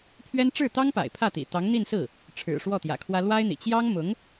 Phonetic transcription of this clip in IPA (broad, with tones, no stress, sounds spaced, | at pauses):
pʰ ɥ ɛ˥ n ʈ͡ʂ ɻ̩˥˩ t̪ ɑ˥ ŋ p a̰˨˩ ɪ̯ pʰ ä˥˩ t̪ ḭ˨˩ t̪ ɑ˧˥ ŋ n̪ i˥˧ n s ɹ̩˥˩ | ʈ͡ʂʰ ɻ̩˨˩ ʂ w ɔ˥˩ t̪ j ä̰˨˩ kʰ w ä˥ l w a˥ ɪ̯ n̪ ḭ˨˩ t͡ɕ j ɑ˥ ŋ m ʊ˧˥ ŋ